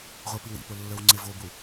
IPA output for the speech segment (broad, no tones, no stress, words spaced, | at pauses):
ʁʷə˞piwḭpo lːə˞wŋ͡ǀevobu